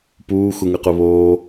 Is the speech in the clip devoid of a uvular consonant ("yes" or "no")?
no